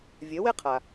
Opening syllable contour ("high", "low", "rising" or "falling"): rising